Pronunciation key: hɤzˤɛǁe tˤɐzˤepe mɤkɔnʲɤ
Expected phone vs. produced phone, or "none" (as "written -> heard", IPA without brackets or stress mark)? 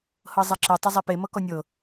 none